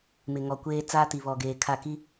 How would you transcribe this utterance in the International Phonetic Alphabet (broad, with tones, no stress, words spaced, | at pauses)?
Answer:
mɪ˨ŋɔ˨kʷeː˦ t͡saː˦ti˨βɔ˨ ɡeː˨kʰa˦˨ ki˦